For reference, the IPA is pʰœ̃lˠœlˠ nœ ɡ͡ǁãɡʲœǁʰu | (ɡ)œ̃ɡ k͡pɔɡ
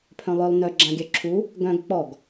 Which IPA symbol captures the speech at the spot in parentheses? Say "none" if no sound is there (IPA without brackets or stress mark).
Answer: ɡ